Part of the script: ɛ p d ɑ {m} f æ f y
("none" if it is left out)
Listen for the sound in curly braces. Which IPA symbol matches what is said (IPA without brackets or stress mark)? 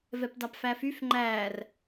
p